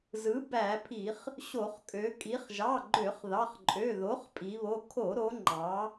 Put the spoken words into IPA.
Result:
zɯ˩˥ bæ˧˩˧pʰi˧˩˧χ | ɕo˧˩˧χkʼø˩˧ kʼi˩˧χʒɑ˩˧˩ɡ͡ǃø˧˩˧χ ðɑ˩˧˩χǃʼø˩˧˩ ðo˩˥χpʼi˩˧βo˩˧˩ kʰo˧˩˧ɾo˩˧ŋ͡ǃɑ˩˧

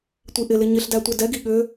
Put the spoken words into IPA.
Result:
tʷiʔɪlɪ ɲɪɬdæ tʷɛdɛɡi ɠʏ

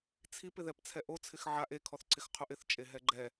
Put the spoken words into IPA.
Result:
t͡sʰip ɪðɛpt͡sʰɛʔo t͡sʰɪxʕaʔ e kʰɔθǀʰɪxqʰuʔɪθ t͡ʃʼeɦɛɡ͡ǃɛ

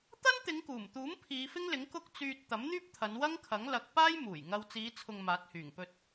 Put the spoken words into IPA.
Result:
t̪ɐ˥nt̪ɪ˨˧ŋkuː˨˩mt̪uː˨˥m pʰiː˨˧fɪ˥ŋlɪ˨˥ŋ kʊ˥k̚t͡syː˧t̚ t̪ɐ˨˥mn̪yː˥p̚t̪ʰɐ˨˧n wɐ˥ŋ kʰɐ˨˥ŋlɐ˨˥k̚ paː˥jmuː˨˩jŋɐ˧w t͡siː˨˧t͡sʰʊ˨ŋ maː˨˥t̚hyː˨˩ŋ pɵ˧t̚

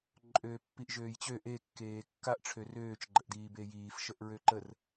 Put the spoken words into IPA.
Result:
ǃʼøːpːiʔʒøːjt͡ɕø ʔe kːeːkːaʔ ʈ͡ʂʰørøːt͡ʃ ɡ͡ǃəʔdiːbeːjiːf ʃəʔɹøǃər

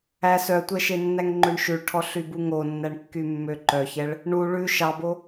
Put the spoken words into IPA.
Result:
æ sœtʷɛʃenːæŋ ŋ͡ǃøɳʃʉɭʈʰɔɬy buŋonːæɳ kːymːøǃœçɛɭ | ɳu ɭʉ ʃɑbo

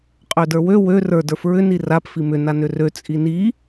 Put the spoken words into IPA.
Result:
qʼødə˞wø wø rə˞ də˞fɹʏ nirap fimʏ nanʏrø t͡sʼini

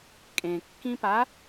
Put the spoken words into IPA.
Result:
kʼẽkːĩpa

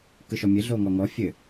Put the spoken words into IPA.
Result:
kɯʃɔmʲɘ ɮoŋɔŋɔ fʲɘ

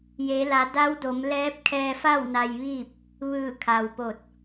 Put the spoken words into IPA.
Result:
je˩˧la˩˧da˧˥wdo˩˧m lɛː˧˥p̚ kʰɛː˧fa˥˨w na˧jʋiː˥˨p̚ | ʋɯː˧˩kʰa˩wpo˧˩t̚

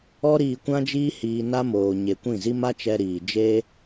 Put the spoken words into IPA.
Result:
ɔ˦ ɾiː˧ kʷã˦d͡ʒiː˦ hiː˧ na˦moː˨ ɲe˨kʷĩ˦˨zi˦ ma˦t͡ʃɛ˧ɾiː˨ d͡ʒe˦

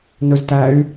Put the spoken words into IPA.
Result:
nɵztæy̯

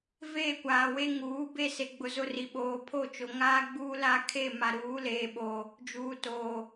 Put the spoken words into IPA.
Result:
veː˦˨kʷaː˨we˦ ŋuː˨˦ be˦se˨ɡ͡bʊ˨zʊ˦˨ ri˨ɓoː˨pʰo˦˨ t͡ʃo˨ŋaː˦ɡ͡buː˦ la˦kʰe˦˨ ma˨ɾuː˨˦leː˨ɓo˨ | d͡ʒuː˨toː˨

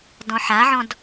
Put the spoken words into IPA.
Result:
dɔ̃ħaʕɔ̃d

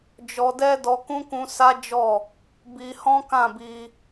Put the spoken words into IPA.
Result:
d͡ʒɔ˧dɛ˦ dɔ˧kũ˦kũ˧ sa˦d͡ʒɔ˦˨ | bi˧ hɔ̃˦kã˦˨bi˧

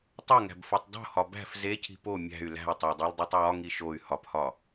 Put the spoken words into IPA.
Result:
tˤoŋæ̤bfotˤ dˤo̤hɒ bæ̤f zecʰi̤ po mʲæ̤y̯ læ̤i̯tˤædˤildˤetˤ wɒŋi ʃoy̯ hɒphɒ

